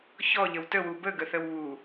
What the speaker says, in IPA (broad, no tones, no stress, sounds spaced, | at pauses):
ç ɔ ʎ ə w t ə w u b ə ɡ ə θ ə w β u